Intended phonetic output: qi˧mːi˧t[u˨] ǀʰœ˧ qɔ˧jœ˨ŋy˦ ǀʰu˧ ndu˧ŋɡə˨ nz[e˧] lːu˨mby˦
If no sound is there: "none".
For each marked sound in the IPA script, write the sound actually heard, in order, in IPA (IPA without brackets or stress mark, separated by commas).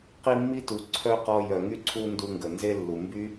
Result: u˨, e˧